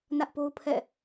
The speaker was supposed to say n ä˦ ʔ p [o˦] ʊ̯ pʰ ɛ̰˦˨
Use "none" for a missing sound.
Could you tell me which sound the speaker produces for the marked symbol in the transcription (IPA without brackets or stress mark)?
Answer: o˦